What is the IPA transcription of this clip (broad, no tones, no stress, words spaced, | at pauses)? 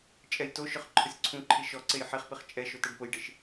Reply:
t͡ʃʼɛjtoʃʊχ ǃʰʊsʲǀʰũǃʰi ʃɔǀej ħiχpiχ t͡ʃʼɛ ʃotɛɖpʊjɖɪʃ